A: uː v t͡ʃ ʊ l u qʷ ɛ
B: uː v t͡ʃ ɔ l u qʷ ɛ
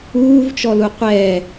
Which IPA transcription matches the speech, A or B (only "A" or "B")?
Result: B